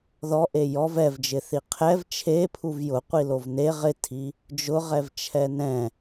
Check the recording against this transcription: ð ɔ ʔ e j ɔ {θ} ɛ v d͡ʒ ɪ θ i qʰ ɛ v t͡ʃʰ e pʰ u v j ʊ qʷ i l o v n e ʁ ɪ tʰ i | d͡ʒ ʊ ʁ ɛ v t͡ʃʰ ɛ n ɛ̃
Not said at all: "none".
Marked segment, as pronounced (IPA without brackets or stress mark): v